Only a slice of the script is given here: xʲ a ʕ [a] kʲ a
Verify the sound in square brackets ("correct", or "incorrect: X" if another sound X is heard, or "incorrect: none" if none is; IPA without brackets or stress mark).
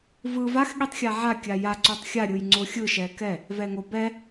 correct